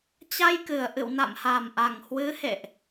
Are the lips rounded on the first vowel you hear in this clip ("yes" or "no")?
no